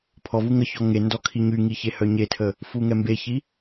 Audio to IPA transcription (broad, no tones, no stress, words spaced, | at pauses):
pʰɔvu ŋəçɔ ŋe ndɔkʰiɲyŋi çehœɲetʰə | fuŋɛmbeçi